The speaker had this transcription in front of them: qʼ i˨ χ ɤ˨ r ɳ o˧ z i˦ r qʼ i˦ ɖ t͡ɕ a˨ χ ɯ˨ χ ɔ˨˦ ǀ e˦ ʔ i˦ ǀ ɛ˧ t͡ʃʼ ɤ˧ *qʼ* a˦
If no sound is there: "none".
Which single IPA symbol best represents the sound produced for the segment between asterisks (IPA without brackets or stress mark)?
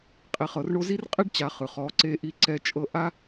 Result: ʔ